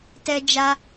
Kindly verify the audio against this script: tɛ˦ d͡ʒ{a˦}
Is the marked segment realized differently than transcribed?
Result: no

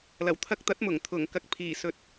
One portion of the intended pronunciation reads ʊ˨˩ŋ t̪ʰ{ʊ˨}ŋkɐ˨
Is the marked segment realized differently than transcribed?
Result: yes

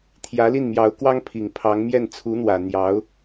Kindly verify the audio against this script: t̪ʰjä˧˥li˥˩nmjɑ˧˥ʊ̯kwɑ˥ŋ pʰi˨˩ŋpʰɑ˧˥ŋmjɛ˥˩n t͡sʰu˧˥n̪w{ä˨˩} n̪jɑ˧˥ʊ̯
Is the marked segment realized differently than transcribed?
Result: no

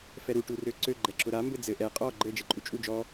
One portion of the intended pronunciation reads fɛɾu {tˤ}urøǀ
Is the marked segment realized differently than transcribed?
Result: yes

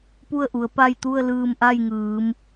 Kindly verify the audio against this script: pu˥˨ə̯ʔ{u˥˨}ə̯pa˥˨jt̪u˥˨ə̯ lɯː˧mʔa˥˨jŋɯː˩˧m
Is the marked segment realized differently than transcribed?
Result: yes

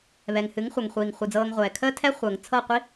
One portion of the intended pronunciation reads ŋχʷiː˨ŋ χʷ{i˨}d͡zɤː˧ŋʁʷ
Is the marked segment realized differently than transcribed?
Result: yes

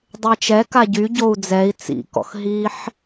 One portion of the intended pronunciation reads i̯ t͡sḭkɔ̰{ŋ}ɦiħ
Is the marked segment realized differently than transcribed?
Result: yes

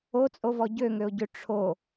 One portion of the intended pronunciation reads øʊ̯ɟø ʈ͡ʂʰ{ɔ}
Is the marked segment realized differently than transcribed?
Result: yes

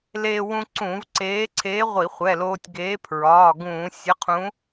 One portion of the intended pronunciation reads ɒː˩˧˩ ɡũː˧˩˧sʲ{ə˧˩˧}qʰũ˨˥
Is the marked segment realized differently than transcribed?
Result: yes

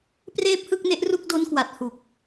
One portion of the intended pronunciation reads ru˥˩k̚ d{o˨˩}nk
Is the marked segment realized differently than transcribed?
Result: yes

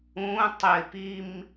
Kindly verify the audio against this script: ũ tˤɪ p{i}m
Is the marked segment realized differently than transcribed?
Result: no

